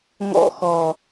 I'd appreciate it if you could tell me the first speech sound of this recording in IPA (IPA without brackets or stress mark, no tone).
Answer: ŋ